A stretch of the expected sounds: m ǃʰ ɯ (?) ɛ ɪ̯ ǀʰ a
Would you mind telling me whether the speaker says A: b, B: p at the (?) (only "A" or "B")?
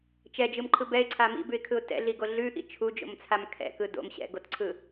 A